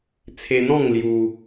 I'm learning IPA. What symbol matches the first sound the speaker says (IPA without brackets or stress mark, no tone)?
t͡sʰ